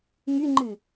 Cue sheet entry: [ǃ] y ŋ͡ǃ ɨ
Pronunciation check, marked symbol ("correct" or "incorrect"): incorrect